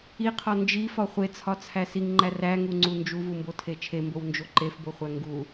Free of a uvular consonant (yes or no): no